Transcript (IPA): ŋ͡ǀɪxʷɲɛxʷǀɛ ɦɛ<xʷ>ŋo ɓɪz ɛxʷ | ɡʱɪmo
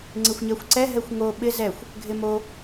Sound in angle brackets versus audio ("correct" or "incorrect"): correct